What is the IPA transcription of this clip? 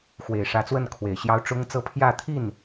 x w e˨˩ ɪ̯ ʂ ä˧˥ t͡s w ə˥˩ n kʰ w e˨˩ ɪ̯ ɕ j ɑ˥ ʊ̯ ʈ͡ʂ ʊ˥ ŋ t͡s ɤ˥ pʰ j ä˥˧ t̪ʰ i˥˩ n

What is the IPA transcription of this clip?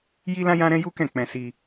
j i˦ l ã˦ j ã˦ ɾ ɛ̃˦ j u˦ k ɛ̃˦˨ k͡p ɛ̃˧ s i˧

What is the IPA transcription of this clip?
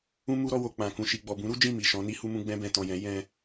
ũ˦ m u˦ ɾ ɔ˧ w o˨ k͡p ã˨ k ũ˨ ʃ i˨ ɡ͡b ɔ˨ b ũ˨˦ ɾ u˦ d͡ʒ ĩ˦˨ m i˨ ʃ ɔ̃˨˦ n i˦ h u˦ m ũ˦ ɡ͡b ɛ̃˦ b ɛ̃˧ t ɔ̃˨ j ɛ̃˨˦ j ɛ̃˧

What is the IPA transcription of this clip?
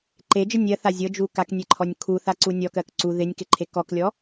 ǃ e d͡ʒ ə nʲ ɜ θ a zʲ ɤ d͡ʒ u k a k nʲ e ǃʰ ɔ nʲ kʰ u θ a ǀ u nʲ ɔ k ɜ k ǀ u ð ɪ nʲ k ɪ ǃʰ e k ɔ k lʲ ɔ

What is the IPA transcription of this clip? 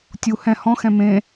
tʲ u h ɛ̃ h ɔ̃ x ɛ̃ m ẽ

